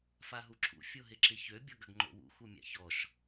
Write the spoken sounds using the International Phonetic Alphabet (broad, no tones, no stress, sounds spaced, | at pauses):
f a ɦ u ǁʰ ṵ fʲ o ɦ ɪ ǁ ɪ ç ø bʲ ɔ ɡ ɐ ɡ ŋ͡ǃ o̰ w ṵ x u mʲ a̰ ç ɔ ʃ